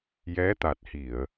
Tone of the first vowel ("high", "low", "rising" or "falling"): rising